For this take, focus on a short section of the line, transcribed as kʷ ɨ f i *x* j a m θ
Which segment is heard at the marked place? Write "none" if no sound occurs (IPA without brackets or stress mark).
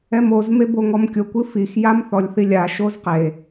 x